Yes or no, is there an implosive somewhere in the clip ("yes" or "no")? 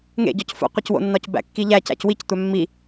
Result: no